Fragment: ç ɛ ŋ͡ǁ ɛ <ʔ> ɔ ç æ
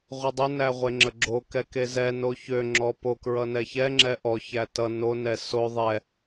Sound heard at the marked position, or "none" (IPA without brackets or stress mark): ʔ